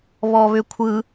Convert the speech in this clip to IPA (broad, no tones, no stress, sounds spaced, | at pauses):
β ɔ β ʏ kʷʰ ɯ